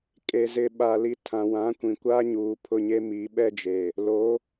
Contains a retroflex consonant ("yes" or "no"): no